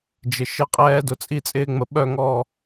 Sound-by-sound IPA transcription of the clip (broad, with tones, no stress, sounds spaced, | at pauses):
d͡ʒ ɪ˨ ʃ ɪ˥˨ qʼ ɛː˦ d ʊ˨ t͡sʼ i˥˨ t͡sʼ ɪː˦ ŋ͡m ə˨ ɓ œ˥˨ ŋ ɔ˥˨